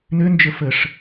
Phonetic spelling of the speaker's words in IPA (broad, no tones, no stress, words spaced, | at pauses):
nønd͡ʒə fəʂ